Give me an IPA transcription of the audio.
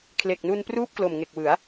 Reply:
kʰ l e˨˩ k̚ n u˧ n p r uː˥˩ p̚ k l o˨˩ m ŋ e˨˩ k̚ w ɯ˩˦ a̯

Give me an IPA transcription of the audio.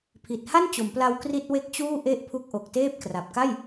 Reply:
pʰ i˨˩ t̚ h a˥˩ n t͡ɕ o˩˦ m p l a˧ w k r i˥˩ t̚ w e˥˩ k̚ t͡ɕ uː˥˩ ʔ e˥˩ ʔ pʰ u˦˥ k̚ ʔ o˨˩ k̚ t eː˥˩ p̚ k r a˨˩ p̚ k a˥˩ j

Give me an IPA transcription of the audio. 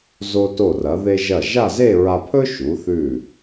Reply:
z o˧ t o˧˩ r ɐ˩˧ ð e˧ ʒ ɐ˧˩ ʒ a˥˧ z e˥˧ ɹ a˧ pʰ ɵ˥ ʃ u˩˧ θ ʉ˧˩

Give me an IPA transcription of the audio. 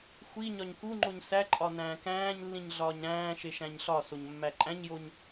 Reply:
xʷ i ɲ ɒ ɲ k u ŋ͡ǃ o ɲ s æ ǃʼ ɒ n æ̃ː k æ̃ː ɲ lː ĩ ɲ ɮ ɒː ɲ ɾ æ̃ː ʃ e ʃ æ̃ ɲ ɬ ɒ s o ɲ mː æ ǃʼ æ̃ ɲ j o ɲ

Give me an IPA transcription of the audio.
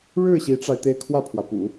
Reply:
ɻ ɻ̩˥˩ ɕ i˧˥ ʈ͡ʂ a˧ ɪ̯ t̪ e˥˧ ɪ̯ kʰ w ä˥˩ pʰ w ä˩ p ṵ˨˩˦

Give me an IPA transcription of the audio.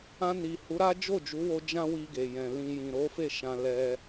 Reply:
ã˧ n i˨ h u˨˦ ɾ a˦ d͡ʒ o˦˨ d͡ʒ u˨˦ w o˧ d͡ʒ ã˦ w i˧ ɡ e˨ j ɛ̃˨ l ĩ˨ j ĩ˨ ɾ o˨˦ f e˦˨ ʃ ã˧ l ɛ˧

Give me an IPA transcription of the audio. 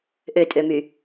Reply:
ʔ ø tʼ ø m y

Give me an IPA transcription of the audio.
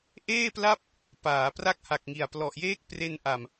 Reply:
ʔ eː˥˩ p l a˥˩ p̚ | p aː˩˦ p r a˥˩ k̚ h a˨˩ k̚ ŋ i˨˩ a̯ p l ɔ˨˩ ʔ j eː˥˩ k̚ p r e˧ n ʔ a˨˩ m

